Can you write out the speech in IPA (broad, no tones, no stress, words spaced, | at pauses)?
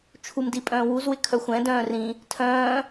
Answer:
t͡ʃʰumdi pʼœ̃ːwuzwɪ kʰœxʷɛ̃ dœ̃ːrĩ | tʰœ̃ː